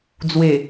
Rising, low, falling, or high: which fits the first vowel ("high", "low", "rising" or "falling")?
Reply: low